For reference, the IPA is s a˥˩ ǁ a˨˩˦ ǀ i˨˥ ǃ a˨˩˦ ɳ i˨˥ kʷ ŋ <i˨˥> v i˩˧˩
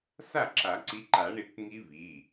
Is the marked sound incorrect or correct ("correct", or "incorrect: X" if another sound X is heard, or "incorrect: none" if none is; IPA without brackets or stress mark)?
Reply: incorrect: i˦˥